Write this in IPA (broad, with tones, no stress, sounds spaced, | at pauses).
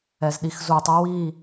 ɛ˧˩˧ z ɗ i˧˩˧ x z u˧˩˧ tˤ o˧˥ w iː˥˨